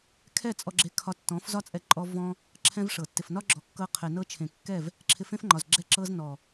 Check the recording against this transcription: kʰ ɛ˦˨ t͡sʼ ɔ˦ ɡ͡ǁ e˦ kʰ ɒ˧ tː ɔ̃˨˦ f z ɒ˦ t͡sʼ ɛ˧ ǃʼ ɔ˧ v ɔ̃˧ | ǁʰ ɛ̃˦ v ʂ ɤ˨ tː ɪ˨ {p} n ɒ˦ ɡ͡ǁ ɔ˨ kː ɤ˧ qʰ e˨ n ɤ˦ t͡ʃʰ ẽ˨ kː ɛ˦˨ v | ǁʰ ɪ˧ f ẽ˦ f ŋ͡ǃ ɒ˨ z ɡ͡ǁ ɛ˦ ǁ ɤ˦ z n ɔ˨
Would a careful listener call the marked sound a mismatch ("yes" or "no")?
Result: yes